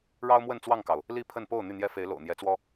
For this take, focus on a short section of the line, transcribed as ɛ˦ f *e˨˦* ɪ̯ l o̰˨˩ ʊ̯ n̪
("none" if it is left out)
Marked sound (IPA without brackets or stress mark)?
e˨˦